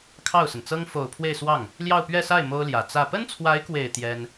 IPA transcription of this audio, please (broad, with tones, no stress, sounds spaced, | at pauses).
kʰ ɑ˥˩ ʊ̯ s ə˩ n t͡s ɤ˥ ŋ f o˨˩ ʊ̯ pʰ w e˥˧ ɪ̯ s w ɑ˥˩ ŋ | l j ɑ˥˧ ʊ̯ p ɥ ɛ˥˧ s a˥˩ ɪ̯ m o˥ ʊ̯ l j ä˨˩ t͡s ä˥˩ p ə˥ n t͡sʰ w a˧˥ ɪ̯ k w e˨˩ ɪ̯ t̪ j ɛ˥ n